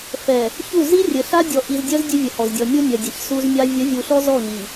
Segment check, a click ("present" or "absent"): absent